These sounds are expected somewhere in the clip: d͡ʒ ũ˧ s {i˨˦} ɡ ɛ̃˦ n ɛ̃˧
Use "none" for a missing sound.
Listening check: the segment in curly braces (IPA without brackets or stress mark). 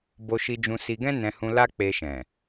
i˧